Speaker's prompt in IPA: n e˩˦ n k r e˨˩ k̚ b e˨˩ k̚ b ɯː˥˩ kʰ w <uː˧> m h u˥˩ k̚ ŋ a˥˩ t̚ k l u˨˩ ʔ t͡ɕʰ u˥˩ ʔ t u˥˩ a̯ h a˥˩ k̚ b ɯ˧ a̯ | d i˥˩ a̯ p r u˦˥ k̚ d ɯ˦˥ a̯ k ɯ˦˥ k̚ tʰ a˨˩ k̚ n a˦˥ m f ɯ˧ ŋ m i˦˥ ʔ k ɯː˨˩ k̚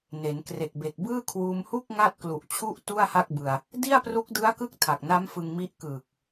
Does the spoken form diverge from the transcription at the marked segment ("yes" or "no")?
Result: no